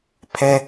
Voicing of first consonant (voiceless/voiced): voiceless